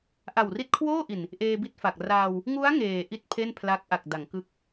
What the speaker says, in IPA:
ʔ a˨˩ w r i˦˥ t̚ kʰ w oː˥˩ ʔ i˨˩ n | ʔ eː˧ b i˥˩ t̚ f a˨˩ k̚ r aː˧ w | ŋ u˦˥ a̯ ŋ eː˨˩ ʔ i˥˩ t̚ pʰ e˥˩ n pʰ l a˦˥ k̚ ʔ a˨˩ k̚ d a˩˦ ŋ k ɯ˦˥ k̚

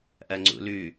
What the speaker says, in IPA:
ʔ ɐ ŋ͡ǀ ṵ l ʉ

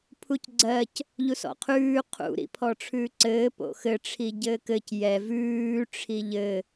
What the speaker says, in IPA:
pʰ u c ɡ͡ǀ ɜ c | ʎ u s ɔ̰ qʰ ʉː qʰ ṵ ɾ ḭ pʰ ɔ ʈ͡ʂʰ ʉː ǀ ɘː p o̰ x ɘ ʈ͡ʂʰ i ɟ ɘː k ɘ c j ɛ v ʉː ʈ͡ʂʰ i ʎ ɘ

